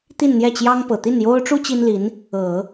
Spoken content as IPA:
t̪ i˥˧ n n̪ j ɛ˥˩ t͡ɕ j ɑ˥ ŋ p ɤ˨˩ t̪ i˥˩ n j o˥ ʊ̯ ʈ͡ʂ u˥ t͡ɕ i˥ n l i˧˥ n | ɤ˨˩˦

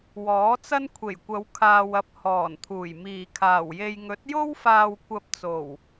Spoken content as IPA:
w ɔː˨˥ t͡s ɐ˥ n kʷʰ e˨˩ j kʷ ɐ˨˧ w kʰ aː˨ w ɐ˨ p̚ h ɔː˨˩ n t̪ʰ uː˨˩ j m iː˨˩ kʰ aː˨˩ w j e˧ j ŋ ɵ˨˥ t̚ j o˥ w f aː˧ w kʷ ɐ˧ p̚ t͡s o˨˩ w

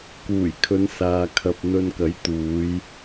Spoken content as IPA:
k uː˨˩ j kʰ ɵ˨˧ n s aː˨ kʰ ɐ˧ p̚ n̪ ɵ˧ n k ɐ˨˥ j t̪ uː˨˧ j

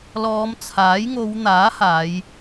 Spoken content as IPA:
l ɔː˨˧ m t͡sʰ aː˨˥ j ŋ o˨˧ w n̪ aː˨˥ h aː˨˧ j

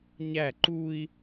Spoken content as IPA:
ɲ æ ǃ u i̯

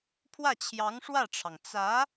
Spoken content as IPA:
pʰ w ä˥˩ t͡ɕʰ j ɑ˧˥ ŋ ʂ w ä˥˩ ʈ͡ʂʰ ɑ˩ ŋ t͡s ä˧˥

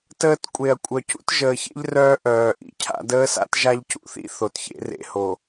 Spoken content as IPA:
t əː˦ t kʷʼ e˨ ɐ̯ kʷʼ œ˨ c ṵ˦ t ʒ əː˨ ç ḛ˦ ʎ r œː˦ ʔ œː˨ ʔ ḭ˨ cʰ a̰˦ d əː˦ s a̰˦ t ʒ a˦ ʎ c ṵ˨ θ ḭ˦ θ o˨ t ç ḛ˦ r ḛ˦ h o˨

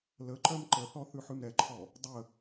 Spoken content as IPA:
l ə ǃ œ m ǃ ə θ ɔ θ ʉ ħ ʉ m ɾ ɛ ǃʰ ɔ | dˤ ə

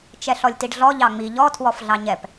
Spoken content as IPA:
t͡ʃ ɛ ɬ ɔ lʲ t i ɖ ɮ ɔ ʎ ɑ ŋ͡m i ʎ ɔ tʰ w ɔ f ɮ ɑ ɲ ɛ p

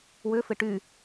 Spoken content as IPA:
w ʏ f ɪ ʈ y

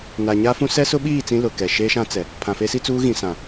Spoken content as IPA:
n a˨ ɲ a˦ f ũ˦ s ɛ˦ s ʊ˦ ɓ iː˦˨ t͡s ĩ˦ l ʊ˨ k ɛ˨ ʃ eː˦ ʃ ã˦ t͡s ɛ˨ | pʰ ã˨ f e˦ s i˦ t͡s uː˦ ɣ ĩ˨ s ã˨

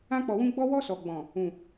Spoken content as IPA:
ã˧ k͡p ɔ˨ w ũ˧ ɡ͡b ɔ˧ w ɔ˧ s ɔ˨ ɡ͡b ɔ̃˨ | ũ˨

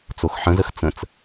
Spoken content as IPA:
t͡s o x ħ ə̃ z ə x t͡s ə̃ t͡s

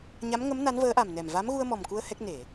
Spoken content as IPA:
ɲ a˧˥ m ŋ ə˧˥ m n a˧˥ n v əː˧˥ ʔ a˨˩ m n ɛ˨˩ m v a˧˥ m ɣ u˧ ə̯ m ɔ˨˩ m k u˧ ə̯ h ɛ˦˥ k̚ n e˨˩˨

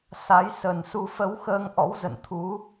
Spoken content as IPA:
s a˨˦ j s ə˨˩ n s u˧ f ə˨˦ w x əː˧ ŋ ʔ ɔ̰˧˥ w z ə̰˧˨ n t̪ʰ u˨˦

